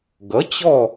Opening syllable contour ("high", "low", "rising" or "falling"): rising